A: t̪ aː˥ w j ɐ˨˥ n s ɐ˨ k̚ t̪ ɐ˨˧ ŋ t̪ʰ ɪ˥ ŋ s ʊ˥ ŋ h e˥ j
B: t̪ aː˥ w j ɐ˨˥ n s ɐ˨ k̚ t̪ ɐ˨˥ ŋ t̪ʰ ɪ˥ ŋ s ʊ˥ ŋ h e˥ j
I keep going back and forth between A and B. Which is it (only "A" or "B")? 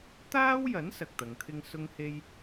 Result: A